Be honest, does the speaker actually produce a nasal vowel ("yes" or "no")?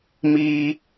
no